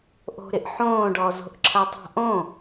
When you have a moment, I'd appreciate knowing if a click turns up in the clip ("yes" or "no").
yes